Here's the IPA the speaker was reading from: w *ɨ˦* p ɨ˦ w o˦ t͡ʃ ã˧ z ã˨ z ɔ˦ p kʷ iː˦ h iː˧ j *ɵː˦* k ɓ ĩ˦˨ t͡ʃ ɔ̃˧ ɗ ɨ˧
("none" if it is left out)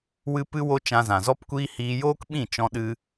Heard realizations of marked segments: ɨ˦, oː˦

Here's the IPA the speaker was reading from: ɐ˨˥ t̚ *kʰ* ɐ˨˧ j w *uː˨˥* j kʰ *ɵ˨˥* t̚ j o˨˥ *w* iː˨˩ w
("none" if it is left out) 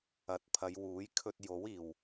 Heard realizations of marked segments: pʰ, uː˨˥, ɵ˧, w

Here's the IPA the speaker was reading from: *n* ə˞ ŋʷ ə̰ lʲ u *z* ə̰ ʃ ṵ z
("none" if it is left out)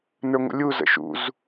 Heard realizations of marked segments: n, z

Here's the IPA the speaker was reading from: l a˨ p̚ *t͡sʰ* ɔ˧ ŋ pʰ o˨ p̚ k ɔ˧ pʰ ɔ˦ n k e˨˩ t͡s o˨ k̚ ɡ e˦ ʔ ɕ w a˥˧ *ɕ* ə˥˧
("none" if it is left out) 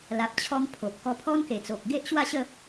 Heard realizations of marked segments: t͡ɕʰ, ɕ

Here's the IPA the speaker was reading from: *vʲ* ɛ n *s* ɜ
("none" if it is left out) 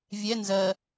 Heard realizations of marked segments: vʲ, z

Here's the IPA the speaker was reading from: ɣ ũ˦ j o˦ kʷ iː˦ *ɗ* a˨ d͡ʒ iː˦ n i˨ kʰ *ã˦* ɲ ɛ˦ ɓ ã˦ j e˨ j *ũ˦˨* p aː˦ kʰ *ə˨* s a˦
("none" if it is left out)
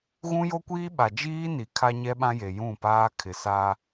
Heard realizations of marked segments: ɓ, a˦, ũ˦˨, ɪ˨

